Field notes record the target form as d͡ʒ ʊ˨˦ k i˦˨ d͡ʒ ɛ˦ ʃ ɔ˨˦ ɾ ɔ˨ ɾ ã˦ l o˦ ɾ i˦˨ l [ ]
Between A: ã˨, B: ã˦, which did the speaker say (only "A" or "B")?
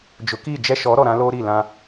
B